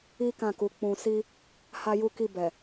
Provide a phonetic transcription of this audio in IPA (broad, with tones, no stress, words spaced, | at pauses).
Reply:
i˦kã˦˨ku˨˦ k͡pũ˧si˦ | ha˦ju˦ki˦˨ bɛ˨